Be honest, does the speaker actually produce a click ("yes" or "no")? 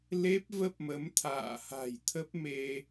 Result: no